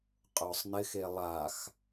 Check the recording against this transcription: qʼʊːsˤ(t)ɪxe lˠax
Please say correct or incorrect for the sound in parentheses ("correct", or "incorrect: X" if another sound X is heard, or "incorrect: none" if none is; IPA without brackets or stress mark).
incorrect: n